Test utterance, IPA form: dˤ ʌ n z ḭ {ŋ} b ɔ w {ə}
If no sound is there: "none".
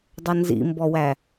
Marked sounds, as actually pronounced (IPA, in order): m, æ

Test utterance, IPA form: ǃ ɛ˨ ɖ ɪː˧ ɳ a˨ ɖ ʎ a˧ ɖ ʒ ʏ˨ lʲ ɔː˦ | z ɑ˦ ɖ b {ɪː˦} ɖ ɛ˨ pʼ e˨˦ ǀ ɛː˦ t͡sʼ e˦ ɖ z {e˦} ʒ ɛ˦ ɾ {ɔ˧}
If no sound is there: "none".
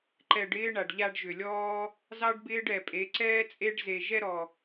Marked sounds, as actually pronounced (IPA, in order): ɪː˦, e˧, ɔ˧

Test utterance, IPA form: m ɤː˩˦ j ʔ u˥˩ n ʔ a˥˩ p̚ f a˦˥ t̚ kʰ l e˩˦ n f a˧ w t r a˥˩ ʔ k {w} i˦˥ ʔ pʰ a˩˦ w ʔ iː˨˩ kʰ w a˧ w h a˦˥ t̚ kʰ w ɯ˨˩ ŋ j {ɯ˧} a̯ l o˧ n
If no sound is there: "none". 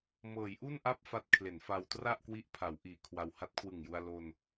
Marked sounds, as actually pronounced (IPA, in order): w, u˧

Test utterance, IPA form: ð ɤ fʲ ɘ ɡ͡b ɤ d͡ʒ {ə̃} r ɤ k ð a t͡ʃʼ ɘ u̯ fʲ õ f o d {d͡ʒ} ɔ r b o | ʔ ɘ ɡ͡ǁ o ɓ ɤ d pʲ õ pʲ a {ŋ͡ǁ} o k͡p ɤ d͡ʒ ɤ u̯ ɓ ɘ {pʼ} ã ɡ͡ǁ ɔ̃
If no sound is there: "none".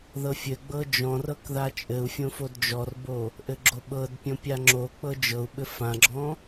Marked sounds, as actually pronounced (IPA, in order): ɔ̃, d͡ʒ, ŋ͡ǁ, f

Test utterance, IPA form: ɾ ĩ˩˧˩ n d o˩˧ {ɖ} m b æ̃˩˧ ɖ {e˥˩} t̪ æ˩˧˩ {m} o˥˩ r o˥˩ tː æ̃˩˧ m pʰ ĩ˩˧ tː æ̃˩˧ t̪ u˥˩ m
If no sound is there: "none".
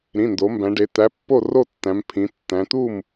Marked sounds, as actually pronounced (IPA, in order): none, e˩˧, pː

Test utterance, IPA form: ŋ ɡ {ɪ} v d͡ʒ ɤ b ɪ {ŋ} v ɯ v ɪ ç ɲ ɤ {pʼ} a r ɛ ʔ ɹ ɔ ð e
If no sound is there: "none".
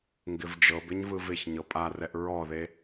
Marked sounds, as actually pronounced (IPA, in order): ɪ, ɲ, pʼ

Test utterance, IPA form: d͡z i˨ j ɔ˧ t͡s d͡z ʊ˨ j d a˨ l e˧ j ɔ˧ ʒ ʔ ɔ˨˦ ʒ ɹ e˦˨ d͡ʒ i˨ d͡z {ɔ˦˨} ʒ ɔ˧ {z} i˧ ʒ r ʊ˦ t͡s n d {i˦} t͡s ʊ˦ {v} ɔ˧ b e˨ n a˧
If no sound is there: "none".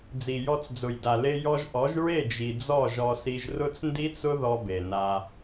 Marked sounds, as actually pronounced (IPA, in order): ɔ˦˨, s, i˦, ð

